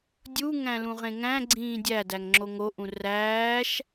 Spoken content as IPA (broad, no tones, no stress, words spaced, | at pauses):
dʲuŋæ̃lũ ʁẽŋæ̃ɡ͡ǀĩː dʲædæŋŋ͡ǁo ŋoʔũ ræːʃ